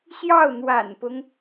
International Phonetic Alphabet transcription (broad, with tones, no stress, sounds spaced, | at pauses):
ɕ j ɑ˥˩ ʊ̯ n̪ w a̰˨˩ n p ʊ˦ ŋ